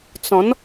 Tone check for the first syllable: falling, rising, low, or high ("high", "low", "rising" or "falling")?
rising